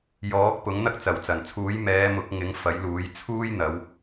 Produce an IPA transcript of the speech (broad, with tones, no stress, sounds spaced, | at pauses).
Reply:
j ɔː˨˥ k̚ p ʊ˨˥ ŋ n̪ ɐ˥ k̚ t͡s ɐ˨˩ w t͡s ɐ˨˩ n t͡sʰ uː˨˥ j m ɛː˨˧ m ʊ˨˥ k̚ ŋ ɪ˨˥ ŋ f ɐ˨˥ j l uː˨˥ j t͡sʰ uː˥ j n̪ ɐ˨˧ w